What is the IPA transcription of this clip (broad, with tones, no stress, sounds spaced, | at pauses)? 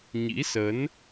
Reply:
ɲ ḭ˧˥ s ə˨˦ n